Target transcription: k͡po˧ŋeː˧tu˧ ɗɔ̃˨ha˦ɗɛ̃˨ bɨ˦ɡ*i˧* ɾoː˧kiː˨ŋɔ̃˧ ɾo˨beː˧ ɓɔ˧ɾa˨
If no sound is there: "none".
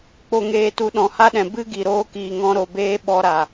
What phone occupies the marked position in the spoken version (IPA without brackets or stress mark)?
i˨